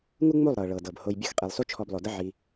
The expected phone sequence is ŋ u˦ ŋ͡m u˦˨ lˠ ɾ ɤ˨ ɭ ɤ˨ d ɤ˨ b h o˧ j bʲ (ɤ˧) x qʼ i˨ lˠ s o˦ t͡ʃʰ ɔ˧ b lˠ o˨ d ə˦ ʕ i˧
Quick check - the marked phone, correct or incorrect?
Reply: correct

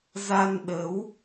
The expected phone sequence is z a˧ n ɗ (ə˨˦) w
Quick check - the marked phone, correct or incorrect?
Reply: correct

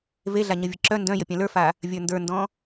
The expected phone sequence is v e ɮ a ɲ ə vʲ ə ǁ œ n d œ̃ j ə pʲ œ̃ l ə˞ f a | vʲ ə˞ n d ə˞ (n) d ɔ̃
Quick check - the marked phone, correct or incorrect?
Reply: correct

